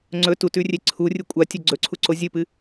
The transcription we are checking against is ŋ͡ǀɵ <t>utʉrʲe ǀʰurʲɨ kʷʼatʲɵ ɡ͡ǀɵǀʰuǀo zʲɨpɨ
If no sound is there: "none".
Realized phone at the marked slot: t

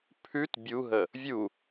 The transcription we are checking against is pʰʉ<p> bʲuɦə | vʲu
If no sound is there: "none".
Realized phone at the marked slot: t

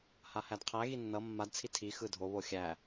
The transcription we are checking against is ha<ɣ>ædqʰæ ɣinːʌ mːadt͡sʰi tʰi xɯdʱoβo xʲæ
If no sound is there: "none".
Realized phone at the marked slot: h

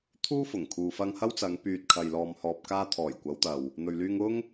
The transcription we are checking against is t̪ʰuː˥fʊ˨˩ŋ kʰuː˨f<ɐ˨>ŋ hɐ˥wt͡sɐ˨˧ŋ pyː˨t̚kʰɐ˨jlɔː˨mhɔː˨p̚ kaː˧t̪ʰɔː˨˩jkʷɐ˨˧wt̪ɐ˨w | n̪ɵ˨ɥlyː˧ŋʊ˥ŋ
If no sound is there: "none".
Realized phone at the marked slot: ɐ˧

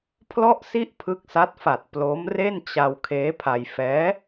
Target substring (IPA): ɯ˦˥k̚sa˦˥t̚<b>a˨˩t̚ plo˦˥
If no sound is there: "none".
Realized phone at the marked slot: f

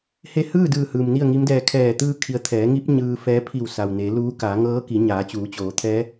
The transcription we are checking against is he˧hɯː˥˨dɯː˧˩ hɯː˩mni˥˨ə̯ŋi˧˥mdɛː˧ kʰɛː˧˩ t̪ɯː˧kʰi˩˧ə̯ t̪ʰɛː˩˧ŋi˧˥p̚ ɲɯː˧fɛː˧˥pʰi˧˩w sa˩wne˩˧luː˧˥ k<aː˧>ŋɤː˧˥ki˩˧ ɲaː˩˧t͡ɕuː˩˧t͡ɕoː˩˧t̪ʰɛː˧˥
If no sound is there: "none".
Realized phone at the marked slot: aː˩˧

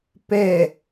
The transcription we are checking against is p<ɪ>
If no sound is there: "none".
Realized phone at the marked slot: ɛ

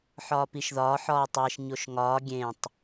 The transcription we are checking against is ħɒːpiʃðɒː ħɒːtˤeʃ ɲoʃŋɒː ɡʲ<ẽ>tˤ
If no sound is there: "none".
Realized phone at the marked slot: ẽ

